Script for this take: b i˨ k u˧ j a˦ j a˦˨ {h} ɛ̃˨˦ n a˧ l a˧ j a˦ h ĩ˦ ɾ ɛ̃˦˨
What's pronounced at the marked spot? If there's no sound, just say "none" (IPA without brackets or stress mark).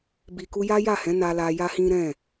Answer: h